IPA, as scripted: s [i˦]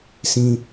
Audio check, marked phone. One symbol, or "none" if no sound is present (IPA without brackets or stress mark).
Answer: ĩ˦